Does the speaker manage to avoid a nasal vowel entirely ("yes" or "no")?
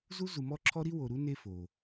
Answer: yes